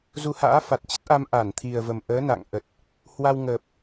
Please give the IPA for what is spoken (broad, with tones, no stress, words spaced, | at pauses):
zu˧ha̰ː˧˥ fa˨˩t̚t͡ɕə˦˥t̚ʔa˧m ʔa˧˩n t̪ʰi˨˩ə̯və˨˩mʔəː˨˦ na̰˧˨ŋʔə˨˩t̚ | hwa˧wŋəː˨˩p̚